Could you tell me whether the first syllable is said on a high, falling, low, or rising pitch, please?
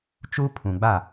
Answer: high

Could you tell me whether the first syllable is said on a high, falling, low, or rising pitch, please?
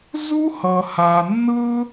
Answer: high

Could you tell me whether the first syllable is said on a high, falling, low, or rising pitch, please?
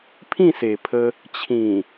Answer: falling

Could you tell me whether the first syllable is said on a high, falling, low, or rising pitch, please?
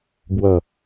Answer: low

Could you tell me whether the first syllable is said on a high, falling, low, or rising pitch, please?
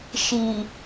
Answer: low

